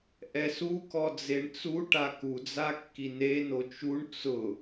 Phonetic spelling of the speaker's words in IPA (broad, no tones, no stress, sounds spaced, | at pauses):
ʔ ɛ s u k ɔ d͡z e ɳ t͡s u ʈ a k u d͡z a kː i n e n o t͡ʃ u ɳ t͡s ʊ